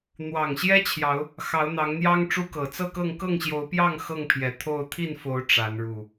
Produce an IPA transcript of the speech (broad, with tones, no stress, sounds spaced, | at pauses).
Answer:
n̪ w ɑ˨˩ ŋ ɕ j ɛ˦ t͡ɕʰ j ɑ˨˦ ʊ̯ | x ɑ˨˦ ʊ̯ n̪ ɑ˨˦ ŋ n̪ j ɑ˦ ŋ ʈ͡ʂ u˦ k ɤ˨˩ t͡s ɤ˥˨ k ɤ˥˨ ŋ k ɤ˥˨ ŋ ɕ j o˨˦ ʊ̯ p j ɑ˥˨ ŋ x ɤ˥˨ ŋ pʰ j ɛ˨˩ t̪ʰ o˥˨ ʊ̯ t̪ʰ i˥˨ n f o˨˦ ʊ̯ ʈ͡ʂ a˨˦ n ɻ u˨˩